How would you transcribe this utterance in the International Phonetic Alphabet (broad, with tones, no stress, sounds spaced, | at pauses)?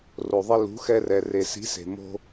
r o˩ ðˤ e˧ l ṳ˩˥ x ɛ˧ r ɛ˩ r e˩ s i̤˩˥ s e̤˩ m o̤˧